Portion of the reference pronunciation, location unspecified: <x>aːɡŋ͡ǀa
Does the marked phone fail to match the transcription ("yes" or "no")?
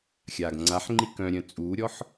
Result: yes